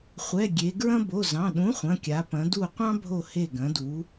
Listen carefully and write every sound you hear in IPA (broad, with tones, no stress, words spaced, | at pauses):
χʷɛ˩˧˩ ɡʲe˩˧ɡɹɐ̃˦ bo˩˧˩zɑ̃˩˧˩ ɗũ˨˥χʷɐ̃˩˧˩kʲa˩˧ pɐ̃˩˧du˧˩ qʷɑ̃˦bʱo˧˩ he˧˩ɡɐ̃˩˧du˩˧